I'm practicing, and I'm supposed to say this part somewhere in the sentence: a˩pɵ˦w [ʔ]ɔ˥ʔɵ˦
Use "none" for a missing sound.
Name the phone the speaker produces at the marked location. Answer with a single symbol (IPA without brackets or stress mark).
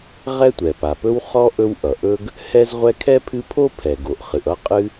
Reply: χ